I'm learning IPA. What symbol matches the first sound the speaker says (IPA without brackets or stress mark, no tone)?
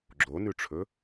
ɡ͡ǁ